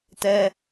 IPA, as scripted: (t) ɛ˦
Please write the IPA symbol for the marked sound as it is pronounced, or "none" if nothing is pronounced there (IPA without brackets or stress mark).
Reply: t